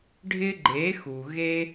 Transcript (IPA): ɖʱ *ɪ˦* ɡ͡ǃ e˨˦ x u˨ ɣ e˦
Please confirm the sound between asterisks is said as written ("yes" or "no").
yes